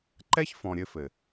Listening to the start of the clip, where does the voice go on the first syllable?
high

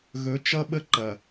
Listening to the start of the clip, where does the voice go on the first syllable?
rising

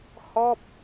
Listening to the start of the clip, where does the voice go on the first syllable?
falling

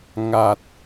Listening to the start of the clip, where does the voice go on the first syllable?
low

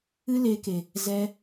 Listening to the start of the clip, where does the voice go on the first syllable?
high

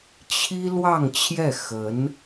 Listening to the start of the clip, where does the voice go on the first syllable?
high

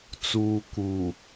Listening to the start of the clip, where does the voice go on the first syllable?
low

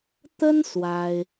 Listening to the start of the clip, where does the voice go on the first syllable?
high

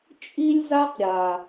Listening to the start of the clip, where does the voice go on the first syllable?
high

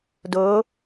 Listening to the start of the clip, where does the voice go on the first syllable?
rising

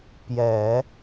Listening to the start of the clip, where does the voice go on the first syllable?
low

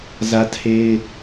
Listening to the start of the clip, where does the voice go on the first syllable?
high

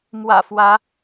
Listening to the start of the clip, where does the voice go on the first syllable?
low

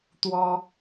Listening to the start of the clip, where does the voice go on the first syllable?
high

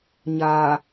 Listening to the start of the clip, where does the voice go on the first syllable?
low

